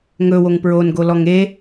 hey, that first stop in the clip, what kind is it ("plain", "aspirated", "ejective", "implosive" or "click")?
plain